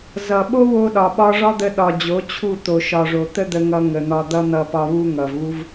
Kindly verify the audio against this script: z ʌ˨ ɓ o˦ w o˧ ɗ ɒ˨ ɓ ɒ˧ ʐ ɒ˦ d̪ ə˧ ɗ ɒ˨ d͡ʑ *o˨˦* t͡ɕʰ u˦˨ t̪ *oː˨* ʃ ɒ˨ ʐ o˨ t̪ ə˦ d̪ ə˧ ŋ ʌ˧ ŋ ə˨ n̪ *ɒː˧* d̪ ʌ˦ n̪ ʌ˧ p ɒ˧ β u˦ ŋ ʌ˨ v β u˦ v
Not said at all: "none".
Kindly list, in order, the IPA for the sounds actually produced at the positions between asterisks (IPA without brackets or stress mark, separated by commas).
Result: o˨˦, o˨, ɒ˧